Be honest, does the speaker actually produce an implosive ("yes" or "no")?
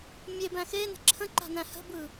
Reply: no